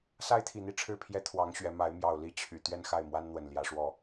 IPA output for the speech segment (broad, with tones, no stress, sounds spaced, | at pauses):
s a˦ ɪ̯ t̪ʰ i˨˩ n̪ i˥˨ ʈ͡ʂʰ ɻ̩˥˨ pʰ j ɛ˦ t̪ʰ w ɑ˨˦ ŋ ɕ ɥ ɛ˨˦ m a˨˦ ɪ̯ m j ɑ˨˩ ʊ̯ l i˥˨ t͡ɕʰ y˨˩ t̪ ɥ ɛ˥˨ n x a˥˨ ɪ̯ m w a˦ n n̪ w ə˨˩ n l j ä˨˦ ʂ w ɔ˥˨